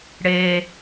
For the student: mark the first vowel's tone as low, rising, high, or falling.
low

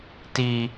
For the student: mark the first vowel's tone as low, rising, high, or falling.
low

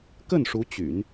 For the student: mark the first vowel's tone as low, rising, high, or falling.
falling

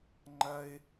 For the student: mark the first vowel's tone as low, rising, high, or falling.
high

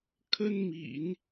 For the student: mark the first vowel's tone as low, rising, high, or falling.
high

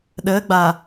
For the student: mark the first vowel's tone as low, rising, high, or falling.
rising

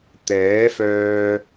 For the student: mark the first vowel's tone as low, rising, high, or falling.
rising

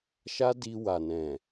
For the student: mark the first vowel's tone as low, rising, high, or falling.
high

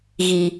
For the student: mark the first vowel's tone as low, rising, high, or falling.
low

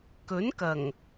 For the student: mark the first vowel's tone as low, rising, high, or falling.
rising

